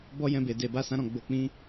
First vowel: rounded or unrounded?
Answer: rounded